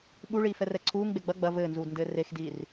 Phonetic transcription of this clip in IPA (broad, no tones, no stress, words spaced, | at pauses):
ɓuɭiː fɛrɛǀʰuːŋɡ͡be ɡ͡bɐ ɡ͡bɐ vɘːnzuːdndɘː rexdiːr